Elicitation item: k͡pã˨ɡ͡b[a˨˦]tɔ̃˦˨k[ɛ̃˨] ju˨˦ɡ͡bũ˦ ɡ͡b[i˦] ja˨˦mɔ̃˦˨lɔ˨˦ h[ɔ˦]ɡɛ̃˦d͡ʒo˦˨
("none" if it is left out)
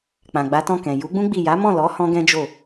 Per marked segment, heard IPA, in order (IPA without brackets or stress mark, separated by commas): a˨˦, ɛ̃˨, i˦˨, ɔ̃˦